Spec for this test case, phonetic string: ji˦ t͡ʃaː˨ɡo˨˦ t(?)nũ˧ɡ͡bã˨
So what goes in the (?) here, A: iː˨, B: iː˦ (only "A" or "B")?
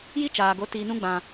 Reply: A